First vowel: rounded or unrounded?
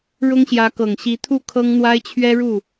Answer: rounded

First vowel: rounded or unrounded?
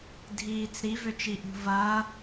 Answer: unrounded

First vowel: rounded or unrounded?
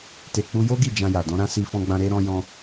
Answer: unrounded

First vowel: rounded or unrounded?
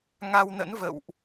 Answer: unrounded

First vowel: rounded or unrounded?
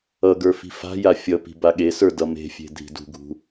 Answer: unrounded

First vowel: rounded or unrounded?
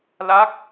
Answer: unrounded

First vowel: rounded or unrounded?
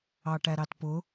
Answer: unrounded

